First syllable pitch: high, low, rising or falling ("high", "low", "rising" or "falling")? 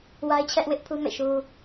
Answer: high